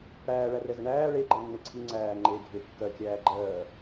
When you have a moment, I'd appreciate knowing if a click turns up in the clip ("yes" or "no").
yes